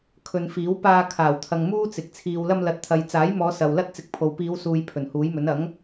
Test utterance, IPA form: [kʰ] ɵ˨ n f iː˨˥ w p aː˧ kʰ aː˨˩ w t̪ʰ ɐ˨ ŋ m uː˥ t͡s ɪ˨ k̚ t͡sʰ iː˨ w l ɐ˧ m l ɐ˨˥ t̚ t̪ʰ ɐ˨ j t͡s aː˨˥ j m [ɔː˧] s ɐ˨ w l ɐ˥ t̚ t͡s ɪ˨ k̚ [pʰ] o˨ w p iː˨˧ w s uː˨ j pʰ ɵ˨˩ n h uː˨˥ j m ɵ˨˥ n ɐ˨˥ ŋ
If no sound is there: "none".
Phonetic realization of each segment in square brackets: kʰ, ɔː˨˧, pʰ

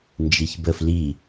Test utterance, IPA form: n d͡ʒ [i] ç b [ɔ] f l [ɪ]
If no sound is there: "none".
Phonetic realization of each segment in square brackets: i, ə, i

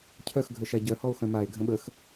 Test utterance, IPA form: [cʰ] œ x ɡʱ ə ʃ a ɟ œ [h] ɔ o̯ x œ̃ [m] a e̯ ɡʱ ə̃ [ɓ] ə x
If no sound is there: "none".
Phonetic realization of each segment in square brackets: cʰ, h, m, ɓ

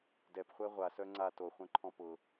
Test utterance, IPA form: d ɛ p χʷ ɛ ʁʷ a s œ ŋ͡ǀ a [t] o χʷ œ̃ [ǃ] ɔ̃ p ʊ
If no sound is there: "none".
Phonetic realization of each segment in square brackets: t, ǃʰ

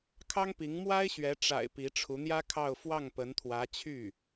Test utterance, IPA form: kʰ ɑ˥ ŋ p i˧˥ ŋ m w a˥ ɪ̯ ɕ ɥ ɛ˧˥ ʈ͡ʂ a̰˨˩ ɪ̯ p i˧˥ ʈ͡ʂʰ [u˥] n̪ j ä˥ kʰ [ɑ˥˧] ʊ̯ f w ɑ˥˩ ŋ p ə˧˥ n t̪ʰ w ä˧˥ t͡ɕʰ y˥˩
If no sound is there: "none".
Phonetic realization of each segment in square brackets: u˧˥, ɑ˥˧

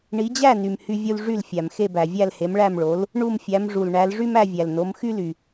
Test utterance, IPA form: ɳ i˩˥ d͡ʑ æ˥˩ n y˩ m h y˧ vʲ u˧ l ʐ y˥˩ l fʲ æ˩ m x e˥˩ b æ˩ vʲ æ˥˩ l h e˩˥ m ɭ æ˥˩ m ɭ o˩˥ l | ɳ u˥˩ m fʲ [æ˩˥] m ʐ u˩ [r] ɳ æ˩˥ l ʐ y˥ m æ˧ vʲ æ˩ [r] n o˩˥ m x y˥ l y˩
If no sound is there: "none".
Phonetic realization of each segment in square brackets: æ˩˥, l, l

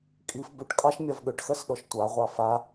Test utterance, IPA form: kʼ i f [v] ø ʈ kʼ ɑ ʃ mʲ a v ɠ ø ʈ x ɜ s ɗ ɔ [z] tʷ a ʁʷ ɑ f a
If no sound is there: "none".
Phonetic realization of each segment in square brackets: b, ʃ

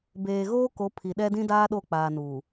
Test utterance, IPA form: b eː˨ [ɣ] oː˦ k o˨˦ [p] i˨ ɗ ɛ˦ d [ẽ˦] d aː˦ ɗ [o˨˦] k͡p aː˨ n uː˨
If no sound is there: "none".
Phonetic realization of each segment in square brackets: ɣ, pʰ, ĩ˦, o˦˨

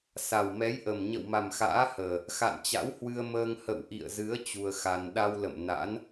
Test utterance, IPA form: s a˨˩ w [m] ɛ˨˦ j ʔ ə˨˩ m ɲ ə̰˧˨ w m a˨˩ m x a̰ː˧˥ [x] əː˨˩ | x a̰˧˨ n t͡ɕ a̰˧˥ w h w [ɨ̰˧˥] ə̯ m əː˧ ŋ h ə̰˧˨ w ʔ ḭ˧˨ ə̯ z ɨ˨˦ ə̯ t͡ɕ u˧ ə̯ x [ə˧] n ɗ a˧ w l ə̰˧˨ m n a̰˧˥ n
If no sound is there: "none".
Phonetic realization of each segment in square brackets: m, h, ɨ˧, a˧

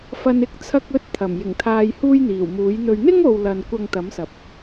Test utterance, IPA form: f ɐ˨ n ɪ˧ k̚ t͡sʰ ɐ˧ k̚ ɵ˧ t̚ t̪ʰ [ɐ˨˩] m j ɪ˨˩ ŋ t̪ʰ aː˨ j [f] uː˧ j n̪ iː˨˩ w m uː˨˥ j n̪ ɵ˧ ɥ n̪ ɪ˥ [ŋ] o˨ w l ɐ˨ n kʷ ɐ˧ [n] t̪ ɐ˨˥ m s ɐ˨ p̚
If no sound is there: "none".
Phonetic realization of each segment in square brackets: ɐ˨˩, h, ŋ, ŋ

